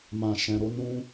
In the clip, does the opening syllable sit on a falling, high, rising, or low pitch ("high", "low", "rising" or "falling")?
low